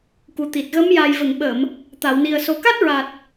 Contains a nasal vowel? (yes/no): no